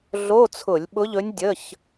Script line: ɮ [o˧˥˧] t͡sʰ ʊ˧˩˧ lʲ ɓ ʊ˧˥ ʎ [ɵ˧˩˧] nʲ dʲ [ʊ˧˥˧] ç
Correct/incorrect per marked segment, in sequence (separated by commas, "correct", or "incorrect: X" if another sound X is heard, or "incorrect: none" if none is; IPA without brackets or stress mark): correct, incorrect: ɵ˧˥, incorrect: ə˧˥˧